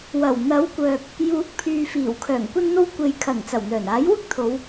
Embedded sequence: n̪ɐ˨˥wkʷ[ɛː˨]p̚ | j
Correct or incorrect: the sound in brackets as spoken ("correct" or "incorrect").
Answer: incorrect